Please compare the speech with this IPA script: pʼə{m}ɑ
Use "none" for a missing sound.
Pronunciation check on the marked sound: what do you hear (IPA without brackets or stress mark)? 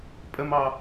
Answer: m